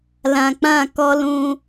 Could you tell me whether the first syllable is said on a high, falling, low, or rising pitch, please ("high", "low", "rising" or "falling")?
low